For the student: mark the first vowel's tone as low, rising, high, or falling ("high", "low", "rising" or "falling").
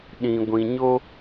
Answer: low